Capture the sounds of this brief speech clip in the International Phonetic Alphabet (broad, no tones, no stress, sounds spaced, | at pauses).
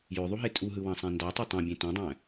j ø ðˤ u ɦ e tʼ u ɦ ɯ w ɑ̃ sˤ æ̃ n d ɑ tˤ ɯ tˤ ɑ̃ bʲ ẽ t õ dˤ æ̃